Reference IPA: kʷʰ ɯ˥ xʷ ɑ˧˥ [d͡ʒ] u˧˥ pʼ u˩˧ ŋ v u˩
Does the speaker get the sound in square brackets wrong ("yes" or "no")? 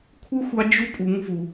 no